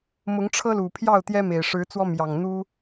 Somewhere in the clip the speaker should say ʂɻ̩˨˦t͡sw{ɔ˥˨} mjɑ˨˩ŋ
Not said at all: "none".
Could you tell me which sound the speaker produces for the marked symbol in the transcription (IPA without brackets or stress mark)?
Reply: ɔ˦